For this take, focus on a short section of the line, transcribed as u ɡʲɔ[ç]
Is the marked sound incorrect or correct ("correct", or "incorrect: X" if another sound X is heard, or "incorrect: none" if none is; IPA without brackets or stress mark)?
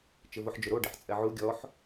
incorrect: ħ